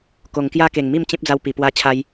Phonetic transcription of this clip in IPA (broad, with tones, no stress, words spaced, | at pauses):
ko˨˩ŋkja˦ke˨˩ŋmi˥˧m t͡ɕẽ˦p̚d͡za˧wpi˨˩ pwa˦t͡ɕʰa˦j